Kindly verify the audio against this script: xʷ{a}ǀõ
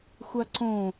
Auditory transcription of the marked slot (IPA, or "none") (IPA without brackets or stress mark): a